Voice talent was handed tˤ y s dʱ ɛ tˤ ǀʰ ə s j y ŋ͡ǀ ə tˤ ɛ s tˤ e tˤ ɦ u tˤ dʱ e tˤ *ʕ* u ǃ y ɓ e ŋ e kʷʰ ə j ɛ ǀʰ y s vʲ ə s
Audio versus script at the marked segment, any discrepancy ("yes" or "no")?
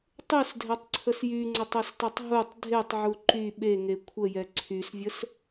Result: no